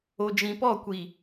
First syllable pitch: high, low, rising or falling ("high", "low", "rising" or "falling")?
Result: low